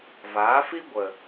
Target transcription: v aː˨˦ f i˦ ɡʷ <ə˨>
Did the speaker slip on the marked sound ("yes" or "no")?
no